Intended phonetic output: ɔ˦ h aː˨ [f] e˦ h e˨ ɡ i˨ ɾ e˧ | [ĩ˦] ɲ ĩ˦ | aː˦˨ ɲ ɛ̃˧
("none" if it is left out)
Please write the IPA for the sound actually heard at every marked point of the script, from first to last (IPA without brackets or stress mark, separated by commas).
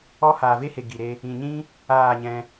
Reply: v, ĩ˨